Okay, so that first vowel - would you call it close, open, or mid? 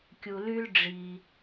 close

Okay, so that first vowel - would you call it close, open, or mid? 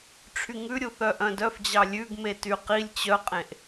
close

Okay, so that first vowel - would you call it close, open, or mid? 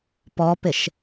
mid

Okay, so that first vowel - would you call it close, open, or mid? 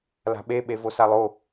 open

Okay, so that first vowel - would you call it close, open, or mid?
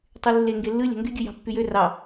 close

